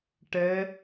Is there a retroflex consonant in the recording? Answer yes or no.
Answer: yes